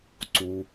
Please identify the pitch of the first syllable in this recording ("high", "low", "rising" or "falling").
low